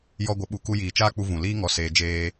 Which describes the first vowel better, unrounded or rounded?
rounded